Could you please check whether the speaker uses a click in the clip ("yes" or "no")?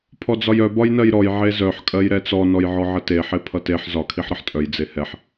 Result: no